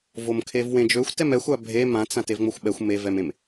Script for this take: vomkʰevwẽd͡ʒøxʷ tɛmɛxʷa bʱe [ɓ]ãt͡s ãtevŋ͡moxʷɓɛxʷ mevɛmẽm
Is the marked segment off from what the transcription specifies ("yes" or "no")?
yes